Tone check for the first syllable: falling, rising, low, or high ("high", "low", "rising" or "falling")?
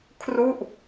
falling